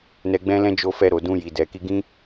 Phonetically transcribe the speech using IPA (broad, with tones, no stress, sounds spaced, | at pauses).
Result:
n ɛ˧ ɡ͡b ɛ̃˦ l ɛ̃˦ d͡ʒ o˧ f ɛ˧ ɾ o˨ d ũ˧ j i˨ d ɛ˨ k i˧ ɡ ĩ˦